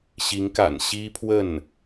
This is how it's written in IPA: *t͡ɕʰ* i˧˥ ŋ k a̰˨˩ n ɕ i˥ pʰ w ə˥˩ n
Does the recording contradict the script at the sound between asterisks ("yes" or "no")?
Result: yes